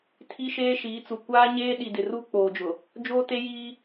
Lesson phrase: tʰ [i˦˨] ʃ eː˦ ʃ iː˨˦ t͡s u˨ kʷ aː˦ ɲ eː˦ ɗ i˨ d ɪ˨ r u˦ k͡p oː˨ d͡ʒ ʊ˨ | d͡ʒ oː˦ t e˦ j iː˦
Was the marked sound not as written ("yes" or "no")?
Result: yes